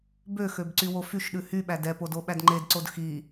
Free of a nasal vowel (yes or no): yes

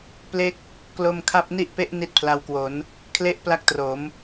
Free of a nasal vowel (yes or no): yes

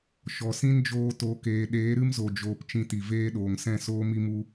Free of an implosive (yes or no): no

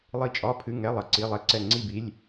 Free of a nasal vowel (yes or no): yes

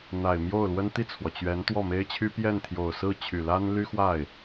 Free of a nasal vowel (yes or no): yes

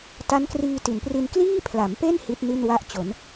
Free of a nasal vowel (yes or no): yes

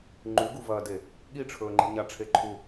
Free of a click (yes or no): no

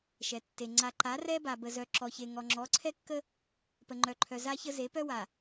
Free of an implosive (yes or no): yes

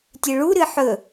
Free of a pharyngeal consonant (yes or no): no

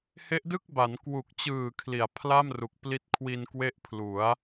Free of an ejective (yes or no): yes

